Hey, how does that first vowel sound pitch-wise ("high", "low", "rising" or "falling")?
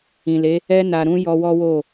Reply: low